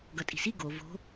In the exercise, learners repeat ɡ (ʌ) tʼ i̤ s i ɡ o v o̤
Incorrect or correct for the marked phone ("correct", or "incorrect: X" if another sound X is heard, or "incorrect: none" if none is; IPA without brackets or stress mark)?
correct